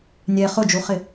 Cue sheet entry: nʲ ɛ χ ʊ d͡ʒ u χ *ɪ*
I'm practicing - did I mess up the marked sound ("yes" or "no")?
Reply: no